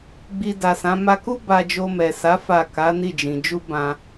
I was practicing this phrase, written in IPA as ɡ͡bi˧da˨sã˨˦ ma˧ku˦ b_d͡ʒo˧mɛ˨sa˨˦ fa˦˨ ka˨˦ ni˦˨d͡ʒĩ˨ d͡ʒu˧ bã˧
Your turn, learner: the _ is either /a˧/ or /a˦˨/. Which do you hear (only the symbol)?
a˧